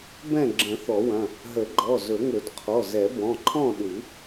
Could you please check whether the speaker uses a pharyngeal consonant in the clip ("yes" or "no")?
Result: no